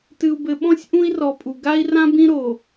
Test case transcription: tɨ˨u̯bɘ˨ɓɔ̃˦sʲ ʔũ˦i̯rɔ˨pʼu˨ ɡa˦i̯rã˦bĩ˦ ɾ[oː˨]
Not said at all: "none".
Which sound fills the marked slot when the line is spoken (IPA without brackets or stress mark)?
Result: o˨